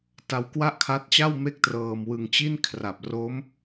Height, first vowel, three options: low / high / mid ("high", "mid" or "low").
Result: low